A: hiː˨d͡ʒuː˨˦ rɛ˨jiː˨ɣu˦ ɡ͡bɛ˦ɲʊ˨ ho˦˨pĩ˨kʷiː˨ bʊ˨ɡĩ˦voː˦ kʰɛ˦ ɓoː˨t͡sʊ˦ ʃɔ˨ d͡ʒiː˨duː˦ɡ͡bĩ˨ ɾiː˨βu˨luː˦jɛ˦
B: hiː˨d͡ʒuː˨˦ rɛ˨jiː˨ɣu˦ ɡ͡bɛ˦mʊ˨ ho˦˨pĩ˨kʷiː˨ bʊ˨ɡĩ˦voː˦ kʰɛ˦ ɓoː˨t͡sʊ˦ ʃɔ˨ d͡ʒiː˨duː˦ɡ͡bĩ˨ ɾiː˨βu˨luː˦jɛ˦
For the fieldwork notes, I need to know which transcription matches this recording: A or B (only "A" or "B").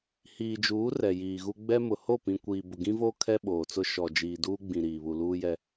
B